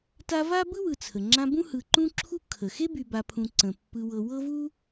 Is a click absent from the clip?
no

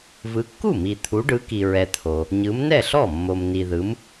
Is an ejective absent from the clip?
yes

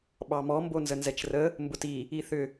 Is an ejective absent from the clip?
yes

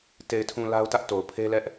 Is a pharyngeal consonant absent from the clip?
yes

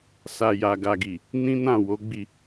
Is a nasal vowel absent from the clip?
no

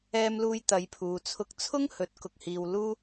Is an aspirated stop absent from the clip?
no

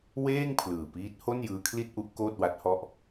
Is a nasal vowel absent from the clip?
yes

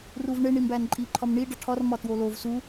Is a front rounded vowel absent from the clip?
yes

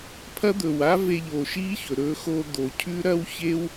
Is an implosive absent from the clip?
yes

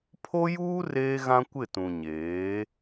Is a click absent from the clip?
yes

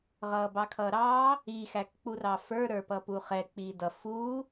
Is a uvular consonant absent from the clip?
no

